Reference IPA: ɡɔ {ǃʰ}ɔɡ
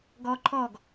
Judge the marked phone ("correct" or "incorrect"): correct